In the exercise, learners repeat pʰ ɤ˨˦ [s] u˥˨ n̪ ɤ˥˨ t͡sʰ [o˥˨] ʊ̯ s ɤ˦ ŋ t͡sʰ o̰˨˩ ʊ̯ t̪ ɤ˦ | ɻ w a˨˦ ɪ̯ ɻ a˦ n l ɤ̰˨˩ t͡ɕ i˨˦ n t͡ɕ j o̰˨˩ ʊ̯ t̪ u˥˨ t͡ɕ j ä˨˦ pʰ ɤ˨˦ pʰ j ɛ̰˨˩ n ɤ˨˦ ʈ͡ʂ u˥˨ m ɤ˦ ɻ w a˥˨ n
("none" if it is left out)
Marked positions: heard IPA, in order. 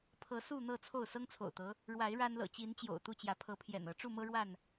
s, o˥˨

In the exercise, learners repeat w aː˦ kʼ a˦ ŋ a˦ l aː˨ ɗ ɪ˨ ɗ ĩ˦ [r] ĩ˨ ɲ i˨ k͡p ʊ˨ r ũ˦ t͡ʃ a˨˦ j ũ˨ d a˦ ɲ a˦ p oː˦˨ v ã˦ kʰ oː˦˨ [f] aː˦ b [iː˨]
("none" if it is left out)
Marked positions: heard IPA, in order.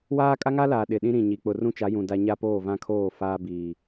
ɾ, f, iː˨

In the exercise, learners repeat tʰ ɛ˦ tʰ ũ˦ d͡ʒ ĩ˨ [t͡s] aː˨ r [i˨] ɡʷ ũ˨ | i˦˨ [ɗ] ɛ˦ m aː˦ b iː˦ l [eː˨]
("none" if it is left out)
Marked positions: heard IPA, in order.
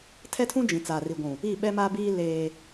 t͡s, i˨, ɓ, eː˦

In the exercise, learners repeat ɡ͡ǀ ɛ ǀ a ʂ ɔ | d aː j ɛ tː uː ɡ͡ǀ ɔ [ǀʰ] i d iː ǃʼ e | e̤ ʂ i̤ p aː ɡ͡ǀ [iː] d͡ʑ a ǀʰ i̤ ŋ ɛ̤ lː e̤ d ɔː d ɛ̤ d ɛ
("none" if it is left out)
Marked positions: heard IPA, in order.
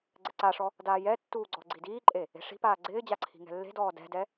ɡ͡ǀ, ɪː

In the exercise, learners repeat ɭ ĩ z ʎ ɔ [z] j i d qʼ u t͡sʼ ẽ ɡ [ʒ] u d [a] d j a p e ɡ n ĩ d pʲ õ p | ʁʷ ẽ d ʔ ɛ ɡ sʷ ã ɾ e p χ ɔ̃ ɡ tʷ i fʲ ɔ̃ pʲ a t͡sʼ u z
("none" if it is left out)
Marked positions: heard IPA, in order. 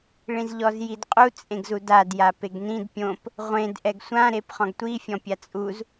z, z, a

